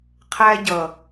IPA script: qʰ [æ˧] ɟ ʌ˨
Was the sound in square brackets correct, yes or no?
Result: yes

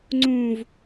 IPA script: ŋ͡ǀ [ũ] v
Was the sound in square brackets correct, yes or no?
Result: yes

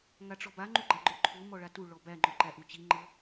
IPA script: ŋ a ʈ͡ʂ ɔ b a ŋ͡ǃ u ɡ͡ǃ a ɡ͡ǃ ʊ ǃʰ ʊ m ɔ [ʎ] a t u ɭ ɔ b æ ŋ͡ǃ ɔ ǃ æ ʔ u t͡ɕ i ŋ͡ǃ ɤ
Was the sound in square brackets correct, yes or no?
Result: no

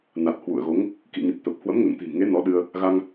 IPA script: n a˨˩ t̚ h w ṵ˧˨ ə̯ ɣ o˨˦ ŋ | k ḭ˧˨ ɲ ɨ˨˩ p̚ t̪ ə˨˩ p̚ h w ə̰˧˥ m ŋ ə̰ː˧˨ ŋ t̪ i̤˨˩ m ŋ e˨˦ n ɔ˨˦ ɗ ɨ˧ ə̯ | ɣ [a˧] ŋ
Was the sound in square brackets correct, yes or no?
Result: yes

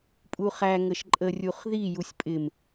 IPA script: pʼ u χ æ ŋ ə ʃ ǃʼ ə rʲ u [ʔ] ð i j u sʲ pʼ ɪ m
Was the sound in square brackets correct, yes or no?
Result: no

